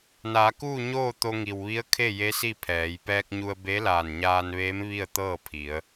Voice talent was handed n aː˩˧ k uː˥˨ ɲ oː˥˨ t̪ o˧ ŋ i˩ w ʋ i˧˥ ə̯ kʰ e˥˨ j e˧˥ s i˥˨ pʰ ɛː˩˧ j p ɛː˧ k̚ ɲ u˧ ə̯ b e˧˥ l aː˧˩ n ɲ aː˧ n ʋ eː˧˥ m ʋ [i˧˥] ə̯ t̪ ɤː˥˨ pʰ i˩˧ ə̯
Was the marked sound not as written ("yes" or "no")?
yes